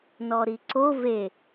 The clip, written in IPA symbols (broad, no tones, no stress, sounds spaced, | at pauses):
n ɔ ɾ i ǀ o v e